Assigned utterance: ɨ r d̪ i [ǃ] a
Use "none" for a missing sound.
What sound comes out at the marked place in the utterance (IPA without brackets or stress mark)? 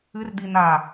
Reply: n̪